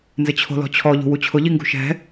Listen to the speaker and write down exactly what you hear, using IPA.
nzɪt͡ɕʰo̤lɔ̤t͡ɕʰɔ ʎṳwut͡ɕʰʊ ʎiŋɡṳʃɛ̤

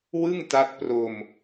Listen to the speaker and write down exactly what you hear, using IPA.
wɯ˥˩ŋ ta˦˥t̚ pro˧m

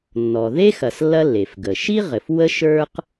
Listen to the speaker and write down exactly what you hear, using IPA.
nːɔ˩ ðe˥xɐ˩s lːɐ˥lːe˩fɡə˩ ʃi˥ ʁɘ˩fwə˥ ʃə˞˥q

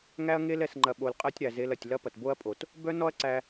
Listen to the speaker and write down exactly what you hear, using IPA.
ŋæ˦ɐ̯ŋe˦l ɛ˨sŋ͡ǃɐ˨ɓo˨l qʼɐ˦tʲɾæ˨ze˧l ɐ˨tʲlɐ˦ pɐ˨tbo˦ɐ̯pʼo˨t | bœ˦nɔ˦ɐ̯ ǀæ˧

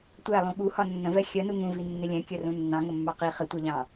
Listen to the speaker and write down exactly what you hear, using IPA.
tʷælˠũ ɠuhɒ nːə̃vɛ xʲɜnu ŋũvi nːɪlʲɛ̃ kʲərũnːɑ̃ ŋəmːɑqi χɪtʷɜʎɑ̃

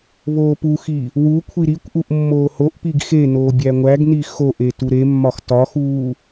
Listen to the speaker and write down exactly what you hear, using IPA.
βoːpuxi | wukʷʰi ɾikʷʔuʔ mːoːhoʔpiɡ xenoː bʲæŋʷæɡni xoʔe tuɾemːɒx tɒxuː

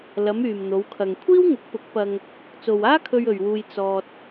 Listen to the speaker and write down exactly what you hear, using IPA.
lɐ˨˧m yː˨mn̪o˨˧wkʰɐ˨ŋ kʷʰiː˥wŋʊ˨˥k̚pʊ˨˥k̚pɐ˧ŋ | t͡so˨waː˥kʰɵ˧ɥ ɵ˨ɥwuː˧j t͡sɔː˧t̚

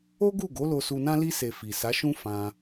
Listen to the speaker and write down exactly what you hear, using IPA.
o˦ɡu˦˨ɡo˨˦ lo˧su˧nã˦ li˧se˨ fi˨sa˨˦ʃũ˦ fã˧

